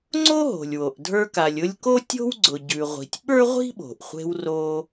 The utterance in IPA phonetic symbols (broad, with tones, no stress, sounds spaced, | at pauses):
ŋ͡ǀ o˥ ɦ o̤˩ lʲ w o˩ ʔ dʱ ə˞˧ k a˩ lʲ ʊ˧ lʲ k o˥ tʲ o̤˥ w ɡ͡ǀ ʊ˩ ɟ ʉ˩ ʁʷ i̤˩ tʲ ɓ ə˞˥ ʁʷ i̤˥ ɓ o̤˩ ʔ χʷ e̤˧ w r o˧